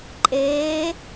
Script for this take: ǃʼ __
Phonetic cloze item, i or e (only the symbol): e